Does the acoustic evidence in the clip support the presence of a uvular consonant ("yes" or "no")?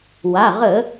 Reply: yes